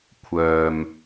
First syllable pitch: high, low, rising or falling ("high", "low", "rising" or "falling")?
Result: low